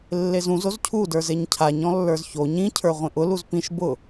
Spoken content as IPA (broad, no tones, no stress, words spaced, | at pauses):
lːezũz ozcʰu də˞zeɲcʰaɲ ɔ̃lːə˞zço ɲĩ cʰə˞ʁʷĩʔʊ luzpĩʃ bʊ